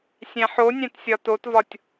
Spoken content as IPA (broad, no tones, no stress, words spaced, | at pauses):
sʲæ̃ħonʲæ̃t sʲɒtotvɒtʲ